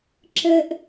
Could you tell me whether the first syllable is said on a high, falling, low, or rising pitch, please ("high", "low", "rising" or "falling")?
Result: high